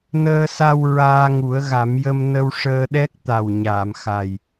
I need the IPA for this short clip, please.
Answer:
nəː˧sa˧w ɹaː˧ŋu˨˩˦ə̯ɣa˨˩˦mjə˧m nə˧wʂəː˧ɗɛ˦˥k̚ t̪a˨˩w ɲaː˨˩˨mxa˨˩j

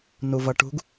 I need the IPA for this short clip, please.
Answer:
nuvʌʈṳɡ

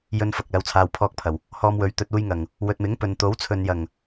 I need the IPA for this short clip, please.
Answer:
jɵ˧nfɐ˨k̚ lɐ˨˧wt͡sʰaː˨wpʰɔː˧k̚pʰɐ˨˩w | hɔː˧mwɵ˨˧ɥ t̪ɵ˧t̚ uː˧jŋɐ˨˩ŋ | wɵ˨t̚mɪ˨˥ŋ pɵ˨n t̪o˨˥wt͡sʰɵ˨n jɐ˨˩ŋ

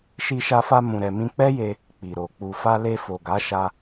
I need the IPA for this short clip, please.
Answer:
ʃi˧ʃa˧fa˧ mũ˨ɾɛ˨ mĩ˧k͡pɛ˦je˧ | k͡pi˨ɾo˨ k͡pu˨fa˧le˧ fo˨ɡa˨˦ʃa˧

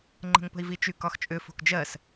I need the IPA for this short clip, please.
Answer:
ŋ͡ǃə̤ŋpə̤i̯vit͡ʃy kɒxt͡ʃʼʏfo̤k d͡ʒɜs

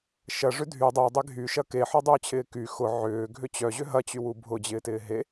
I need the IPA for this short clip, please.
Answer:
ʃɐʐʏ dʱy dˤœdˤe ɡʱyʃɐ keħɔdˤʏːt͡ɕʰɪː ky xʊ ʕʏːɡʱʏ t͡ɕœʑʏ ɦɐt͡ɕywu bʱʊd͡ʑɪːtɪː ɦe

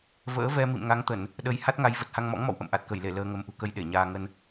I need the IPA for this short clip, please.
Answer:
və̰ː˧˥vɛ˧ mḭ˧˨mŋa˨˦ŋt̪ə˧˩˨n | ɗə˧j ha˦˥t̚ŋa˨˦j və˨˩t̚ha˧ŋmɔ̰˧˥ŋmɔ̰˧˨w ʔə̰˧˨mʔa˨˩t̚kə˧˩jle˧˩ ləː˧ŋə˨˦m ʔṳ˨˩kə˨˦j ɗe˧˩ɲaː˧ ŋə˧n

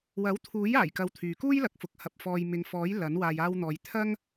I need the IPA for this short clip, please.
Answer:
wɐ˨˥wt̪ʰuː˨˥j aː˨˩jkɐ˨w t̪ʰyː˨kuː˥jlɐ˨˥k̚fʊ˨˥k̚ hɐ˨p̚ fɔː˨j mɪ˨ŋfɔː˨˥j lɐ˨˥n waː˨jaː˧wn̪ɔː˨j t̪ʰɐ˥ŋ

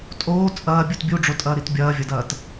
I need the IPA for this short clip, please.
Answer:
tʼoː t͡sʼɐːbʲut bʲuɖ͡ʐotʼɐːɾit bʲɐːvʲɐdɐːt

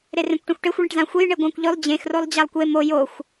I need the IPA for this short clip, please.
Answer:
ɾerẽkʷʈẽxʷʈexʷ ɭẽʈzãxʷej ɳeɡʷãkʷʎɵlˠ d͡ʑẽx rolˠd͡ʑalˠkʷe mo joxʷ

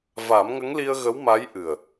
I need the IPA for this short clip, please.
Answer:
va˨˩˦m ŋə˧˥ŋli˧ə̯ɣə˧˥w ma˧˥jʔɨ˨˩ə̯

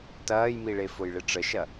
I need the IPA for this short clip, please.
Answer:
tɐːjmiɭe fʊjɭɪʈ͡ʂəʃɐ

